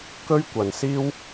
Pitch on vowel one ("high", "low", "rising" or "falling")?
high